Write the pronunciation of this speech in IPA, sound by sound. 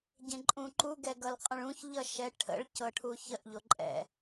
ɟ ẽ ǃʼ ũ ǃ u ɡ ɛ ɡ ʌ l qʼ ə̃ ɭ ũ ç ʎ ʌ ʃ ɛ ʈʰ ə̰ ɭ c ɤ ʈʰ u ç ə ʔ ʎ o ǃʼ ɛ̰

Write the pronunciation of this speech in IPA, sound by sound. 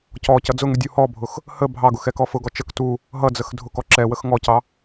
c ɔ c ʌ d͡z ʊ ŋ u dʲ u h ɔ bʱ ʊ x | h ə bʱ ɑ ɡ ʊ x ɛ k ɔ f ʊ ɡ ɔ t͡ʃ ə k t u | ɦ ʌ d͡z ə x dʱ ʊ k ɔ ǁ ɛ w ə x ŋ ɔ c ɑ

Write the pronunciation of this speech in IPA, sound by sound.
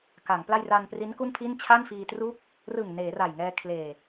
k a˩˦ ŋ p l a˥˩ j r a˧ n p r i˦˥ n k u˥˩ n pʰ i˥˩ n t͡ɕʰ a˥˩ n f iː˧ t r uː˥˩ k̚ | r ɯ˨˩ ŋ n eː˩˦ r a˨˩ j ŋ ɛː˧ kʰ l eː˨˩

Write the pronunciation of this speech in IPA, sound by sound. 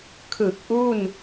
kʰ ɯ˨˩ k̚ ʔ u˥˩ n

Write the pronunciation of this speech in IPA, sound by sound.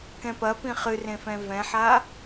k ɛ̃ p ɐ p ĩ χ ɨ r ẽ f ɛ̃ v ɛ̃ ħ a

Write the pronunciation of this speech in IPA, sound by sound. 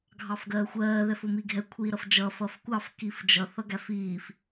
ɡʱ ɑ f ɡ ɜː xʷ ɜː ð ɛ f ʊ m i ɡʱ ɛ kʷʰ iː ɾ ʌ f d͡ʒ ʌ f ʌ f kʷ ɑ f k i f d͡ʒ ʌ θ ʌ ɡ æ f iː f

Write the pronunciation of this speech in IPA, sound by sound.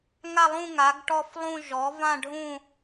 ŋ a˥˧ lˠ ũ˥˧ ŋ a˨˥ ɡ ʈ ɔ˥˧ f lˠ ũ˥˧ ʒ ɔ˨˥ v ã˥˧ ɖʱ ũ˥˧

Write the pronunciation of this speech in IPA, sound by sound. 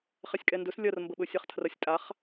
χ ɛ sʲ kʼ ɛ n d ɵ s lʲ ɐ r m b ə ɓ ɵ sʲ a χ tʰ r ɐ sʲ tʼ a χ

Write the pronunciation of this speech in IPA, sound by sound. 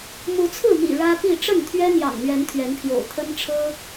m u˨˦ t͡sʰ ɹ̩˥˨ m ḭ˨˩ ɻ ä˦ p i˥˨ ʈ͡ʂ ə˥˨ n t̪ʰ ɥ ɛ˦ n̪ j ɑ̰˨˩ ŋ n̪ ɥ ɛ˨˦ n t̪ʰ ɥ ɛ˨˦ n pʰ j o̰˨˩ ʊ̯ t̪ʰ ə˦ n ʈ͡ʂʰ ɤ˦

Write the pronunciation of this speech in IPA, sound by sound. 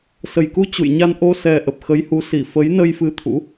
s ə˨˩ j k u˧ t͡ɕ ṵ˧˨ j ɲ a˧ n ʔ o˧ s ɛ˧ ʔ ə˨˩ p̚ x ə˨˦ j h u˨˦ s i˧˩ f ə˨˦ j n ə˧ j f ɨ˧ t̪ʰ ṵ˧˥

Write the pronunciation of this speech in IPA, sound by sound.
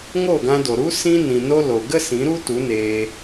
ŋ o˦˨ ɡ ã˧ d o˨ ɾ u˦ s ĩ˧ n ĩ˨ n o˧ l o˨ ɡ ə˦ s ĩ˨˦ ɾ u˦ t u˨˦ n eː˧

